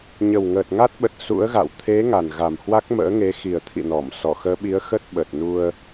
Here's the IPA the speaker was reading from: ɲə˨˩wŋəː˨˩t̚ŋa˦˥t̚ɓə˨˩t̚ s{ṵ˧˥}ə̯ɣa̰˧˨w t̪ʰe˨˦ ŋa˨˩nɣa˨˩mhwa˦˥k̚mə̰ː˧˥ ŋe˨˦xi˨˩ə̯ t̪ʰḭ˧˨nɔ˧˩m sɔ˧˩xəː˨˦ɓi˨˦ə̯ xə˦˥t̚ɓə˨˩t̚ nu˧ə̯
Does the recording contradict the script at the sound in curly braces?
no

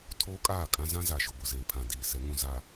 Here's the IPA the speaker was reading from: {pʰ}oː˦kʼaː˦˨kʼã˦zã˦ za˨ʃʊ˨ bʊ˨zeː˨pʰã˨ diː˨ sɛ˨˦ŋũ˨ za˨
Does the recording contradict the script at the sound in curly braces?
yes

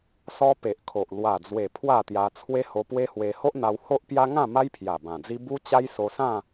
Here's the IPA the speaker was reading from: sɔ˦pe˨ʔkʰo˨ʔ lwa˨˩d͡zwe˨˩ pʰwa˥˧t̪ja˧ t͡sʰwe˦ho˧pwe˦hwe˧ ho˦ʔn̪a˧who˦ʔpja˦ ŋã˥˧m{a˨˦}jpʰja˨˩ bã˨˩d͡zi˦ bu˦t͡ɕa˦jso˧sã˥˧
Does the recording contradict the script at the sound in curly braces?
yes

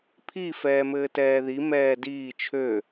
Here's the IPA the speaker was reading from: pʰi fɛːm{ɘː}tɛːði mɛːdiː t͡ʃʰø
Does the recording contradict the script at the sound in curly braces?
no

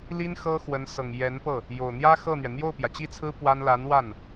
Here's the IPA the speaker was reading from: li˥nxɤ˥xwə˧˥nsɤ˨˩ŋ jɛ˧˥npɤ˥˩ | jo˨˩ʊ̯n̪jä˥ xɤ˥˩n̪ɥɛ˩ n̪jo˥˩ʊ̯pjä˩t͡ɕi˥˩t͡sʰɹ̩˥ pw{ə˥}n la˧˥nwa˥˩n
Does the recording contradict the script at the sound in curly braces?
yes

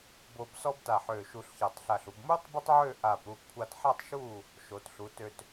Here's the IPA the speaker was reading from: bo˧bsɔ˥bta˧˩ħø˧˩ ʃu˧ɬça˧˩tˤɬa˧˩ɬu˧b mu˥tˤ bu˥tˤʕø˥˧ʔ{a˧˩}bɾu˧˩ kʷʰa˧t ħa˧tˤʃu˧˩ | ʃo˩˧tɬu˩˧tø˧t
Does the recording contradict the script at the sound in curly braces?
no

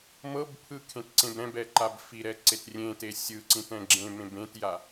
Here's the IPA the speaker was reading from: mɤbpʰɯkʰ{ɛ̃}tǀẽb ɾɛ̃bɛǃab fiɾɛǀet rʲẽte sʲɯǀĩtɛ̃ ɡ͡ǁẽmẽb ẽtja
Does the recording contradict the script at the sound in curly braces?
yes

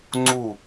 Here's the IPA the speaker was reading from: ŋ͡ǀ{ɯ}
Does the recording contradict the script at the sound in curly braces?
yes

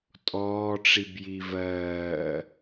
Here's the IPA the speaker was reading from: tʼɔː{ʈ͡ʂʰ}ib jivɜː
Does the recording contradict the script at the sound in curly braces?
yes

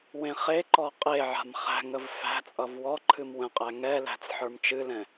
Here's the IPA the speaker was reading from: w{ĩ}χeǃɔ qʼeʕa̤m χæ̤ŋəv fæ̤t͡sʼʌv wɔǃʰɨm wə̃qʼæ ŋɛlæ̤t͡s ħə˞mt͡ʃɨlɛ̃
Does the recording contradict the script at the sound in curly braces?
yes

